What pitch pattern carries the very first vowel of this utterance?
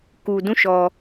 low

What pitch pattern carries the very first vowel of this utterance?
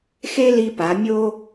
high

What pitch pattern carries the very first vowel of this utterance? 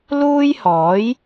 high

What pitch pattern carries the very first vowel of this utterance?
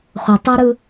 low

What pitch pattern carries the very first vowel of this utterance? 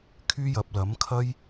high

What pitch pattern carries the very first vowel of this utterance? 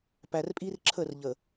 low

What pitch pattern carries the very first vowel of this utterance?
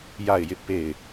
falling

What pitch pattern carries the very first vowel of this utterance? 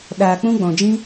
low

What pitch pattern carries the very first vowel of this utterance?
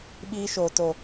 high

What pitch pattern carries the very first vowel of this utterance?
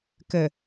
low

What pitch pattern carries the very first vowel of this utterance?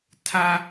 high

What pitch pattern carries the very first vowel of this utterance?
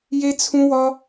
high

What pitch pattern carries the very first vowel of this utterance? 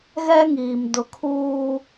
high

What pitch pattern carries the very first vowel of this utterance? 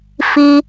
high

